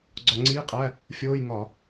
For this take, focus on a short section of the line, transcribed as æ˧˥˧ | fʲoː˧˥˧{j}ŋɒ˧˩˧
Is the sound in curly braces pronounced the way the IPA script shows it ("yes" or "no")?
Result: yes